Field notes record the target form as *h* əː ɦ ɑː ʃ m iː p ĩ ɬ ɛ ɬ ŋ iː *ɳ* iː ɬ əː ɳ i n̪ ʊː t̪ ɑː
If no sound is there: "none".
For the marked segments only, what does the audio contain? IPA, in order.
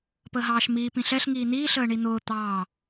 p, n̪

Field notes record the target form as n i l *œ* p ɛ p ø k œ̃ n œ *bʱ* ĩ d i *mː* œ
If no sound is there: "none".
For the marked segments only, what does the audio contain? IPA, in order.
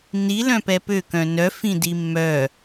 œ̃, f, mː

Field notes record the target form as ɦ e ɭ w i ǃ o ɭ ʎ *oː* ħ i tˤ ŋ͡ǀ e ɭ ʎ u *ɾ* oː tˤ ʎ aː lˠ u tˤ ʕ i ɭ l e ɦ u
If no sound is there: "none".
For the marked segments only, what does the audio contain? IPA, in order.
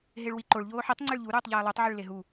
oː, ɾ

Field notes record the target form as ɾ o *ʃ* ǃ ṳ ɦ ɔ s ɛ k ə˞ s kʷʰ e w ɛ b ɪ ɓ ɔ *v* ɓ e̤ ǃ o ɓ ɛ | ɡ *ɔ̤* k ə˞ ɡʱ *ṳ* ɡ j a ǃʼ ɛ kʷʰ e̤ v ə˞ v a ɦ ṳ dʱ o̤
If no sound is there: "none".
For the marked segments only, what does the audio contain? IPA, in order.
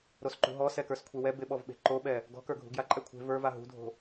s, v, ɔ̤, ṳ

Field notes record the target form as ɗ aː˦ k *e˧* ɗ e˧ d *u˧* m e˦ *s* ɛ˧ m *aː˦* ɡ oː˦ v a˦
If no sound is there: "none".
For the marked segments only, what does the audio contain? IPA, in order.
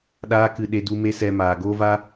ɨ˧, u˧, s, aː˨

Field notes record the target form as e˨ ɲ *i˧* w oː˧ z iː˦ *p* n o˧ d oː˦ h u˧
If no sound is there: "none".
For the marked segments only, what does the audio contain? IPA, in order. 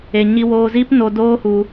i˧, p

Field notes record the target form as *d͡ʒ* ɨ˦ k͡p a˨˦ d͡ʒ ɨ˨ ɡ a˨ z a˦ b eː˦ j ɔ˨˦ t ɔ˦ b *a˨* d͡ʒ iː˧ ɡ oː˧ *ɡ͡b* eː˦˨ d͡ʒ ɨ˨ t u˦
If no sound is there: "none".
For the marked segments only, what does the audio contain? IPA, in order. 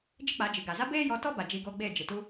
d͡ʒ, a˨, ɡ͡b

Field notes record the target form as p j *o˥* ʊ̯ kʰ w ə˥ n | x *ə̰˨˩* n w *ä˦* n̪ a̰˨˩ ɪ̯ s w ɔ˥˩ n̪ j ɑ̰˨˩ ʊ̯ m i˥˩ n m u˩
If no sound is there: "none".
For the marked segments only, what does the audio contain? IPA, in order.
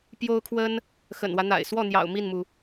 o˥, ə̰˨˩, ä˦

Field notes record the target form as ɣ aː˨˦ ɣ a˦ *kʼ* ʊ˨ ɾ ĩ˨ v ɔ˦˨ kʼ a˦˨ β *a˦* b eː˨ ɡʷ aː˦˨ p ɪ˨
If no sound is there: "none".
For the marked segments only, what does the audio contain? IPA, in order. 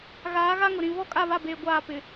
ŋ, a˦˨

